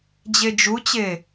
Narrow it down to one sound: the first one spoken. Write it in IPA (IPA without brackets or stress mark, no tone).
d͡ʑ